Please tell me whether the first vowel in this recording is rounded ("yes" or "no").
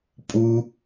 yes